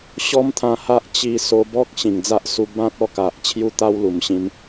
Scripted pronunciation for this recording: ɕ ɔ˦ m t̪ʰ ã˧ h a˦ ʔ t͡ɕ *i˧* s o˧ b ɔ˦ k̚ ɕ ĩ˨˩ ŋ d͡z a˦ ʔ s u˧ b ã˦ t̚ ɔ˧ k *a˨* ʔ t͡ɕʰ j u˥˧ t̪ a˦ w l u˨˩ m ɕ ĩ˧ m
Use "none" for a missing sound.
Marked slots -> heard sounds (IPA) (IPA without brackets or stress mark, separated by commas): i˧, a˨